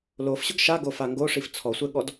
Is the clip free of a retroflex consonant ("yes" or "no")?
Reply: no